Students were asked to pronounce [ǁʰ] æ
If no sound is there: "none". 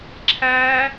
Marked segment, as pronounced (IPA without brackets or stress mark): ǁʰ